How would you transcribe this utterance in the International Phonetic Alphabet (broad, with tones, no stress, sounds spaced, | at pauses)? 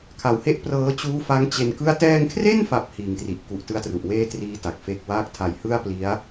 kʰ a˨˩ w h e˥˩ ʔ p r ɤː˦˥ t͡ɕ uː˦˥ f a˦˥ ŋ t͡ɕ e˧ n k ɯ˥˩ a̯ t ɛː˧ ŋ kʰ r e˥˩ n f a˨˩ p̚ h iː˨˩ ŋ t r i˨˩ ʔ k u˨˩ ʔ t ɯ˦˥ a̯ t r u˨˩ ʔ w eː˥˩ t r iː˦˥ t a˨˩ k̚ f e˥˩ k̚ w aː˥˩ k̚ tʰ a˨˩ j h ɯ˥˩ a̯ p l i˦˥ a̯